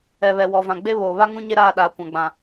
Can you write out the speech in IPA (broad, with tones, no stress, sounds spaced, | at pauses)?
ɛ˨ β ɛ˨ w ɔ˨ v ã˨ ɡ͡b e˦ β oː˨ β a˦ ŋ ũ˦ ɲ e˦ ɾ aː˦˨ ɗ aː˨ kʷ ã˨ ɡ͡b ã˨